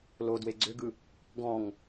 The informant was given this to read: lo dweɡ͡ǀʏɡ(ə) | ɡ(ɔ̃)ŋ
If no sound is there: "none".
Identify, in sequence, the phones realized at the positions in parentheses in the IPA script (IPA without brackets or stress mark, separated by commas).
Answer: ɯ, ɔ̃